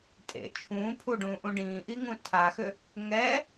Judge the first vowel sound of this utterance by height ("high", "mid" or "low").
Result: mid